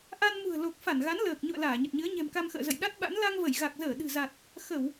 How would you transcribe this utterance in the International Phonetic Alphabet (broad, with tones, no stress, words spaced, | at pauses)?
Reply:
ʔa˧nmṳ˨˩ə̯lo˨˩k̚ fa˧˩nɣa˨˦n ləː˨˩k̚ ɲṵ˧˨ə̯ laː˧˩ɲə˨˩t̚ɲɨ˨˦ə̯ ɲɛ̤˨˩mka˧mxə̰ː˧˨zə̰˧˨j ɗa˦˥t̚ɓa̰˧˥n la˧ŋvə˧˩jɣa˨˩k̚zəː˧˩ ɗɨ̤˨˩za˨˩t̚ | xə˧˩˨w